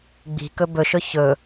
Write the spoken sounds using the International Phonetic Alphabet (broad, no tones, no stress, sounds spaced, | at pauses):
ɡ͡b i̤ k ɵ b ɵ ʃ ɵ ç ɵ